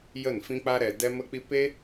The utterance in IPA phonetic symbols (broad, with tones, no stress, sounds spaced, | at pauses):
j ə˦˨ n f ĩ˦ k͡p a˦ ɾ ɛ˧ d ɛ˦ m ə˦ k͡p i˦ p e˦